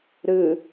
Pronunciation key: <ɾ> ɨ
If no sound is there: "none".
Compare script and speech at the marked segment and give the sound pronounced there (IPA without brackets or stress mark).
ɾ